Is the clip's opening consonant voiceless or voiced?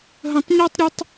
voiced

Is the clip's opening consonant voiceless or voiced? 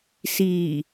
voiceless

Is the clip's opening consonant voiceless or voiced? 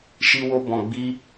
voiceless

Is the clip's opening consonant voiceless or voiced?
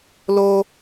voiced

